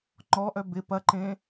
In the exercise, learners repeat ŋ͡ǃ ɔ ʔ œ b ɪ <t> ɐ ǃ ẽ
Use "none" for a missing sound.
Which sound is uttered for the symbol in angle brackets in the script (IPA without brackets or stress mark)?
p